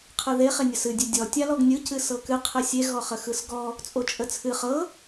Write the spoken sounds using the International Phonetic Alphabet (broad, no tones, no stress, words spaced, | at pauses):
qʰɯðe χenʲəsɨ dʲɨdʲɔ tʲalɔɡnʲɯ cɨsɤkɨ qʰɨsʲe ɣɔχəxɯsɡɔ | t͡sʼot͡ʃʼət͡sʰɨ χɤ